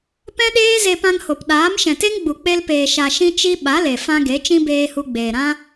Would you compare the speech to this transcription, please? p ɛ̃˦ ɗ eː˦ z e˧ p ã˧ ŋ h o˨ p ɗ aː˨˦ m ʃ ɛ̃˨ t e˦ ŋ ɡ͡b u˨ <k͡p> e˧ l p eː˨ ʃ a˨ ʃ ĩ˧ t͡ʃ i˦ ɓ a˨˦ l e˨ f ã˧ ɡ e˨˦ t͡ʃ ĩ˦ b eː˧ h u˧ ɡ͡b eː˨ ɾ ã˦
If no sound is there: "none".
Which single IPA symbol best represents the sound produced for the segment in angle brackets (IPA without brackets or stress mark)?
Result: k͡p